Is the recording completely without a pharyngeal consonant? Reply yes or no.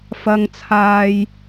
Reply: yes